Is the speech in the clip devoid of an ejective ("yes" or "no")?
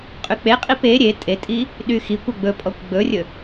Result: no